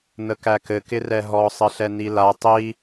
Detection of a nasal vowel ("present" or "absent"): absent